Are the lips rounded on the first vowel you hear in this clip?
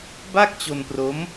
no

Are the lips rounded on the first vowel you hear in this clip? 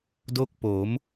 yes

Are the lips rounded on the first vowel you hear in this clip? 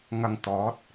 no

